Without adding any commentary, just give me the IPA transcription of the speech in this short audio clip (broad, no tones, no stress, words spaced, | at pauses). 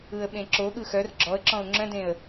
ɯə̯ɓẽǁoɠɯ xœr ɡ͡ǁɔə̯ǁɔ̃ʊ̯ ŋ͡ǁœ̃dẽə̯